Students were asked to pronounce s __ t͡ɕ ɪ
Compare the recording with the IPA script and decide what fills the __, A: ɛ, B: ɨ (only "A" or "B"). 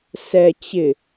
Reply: A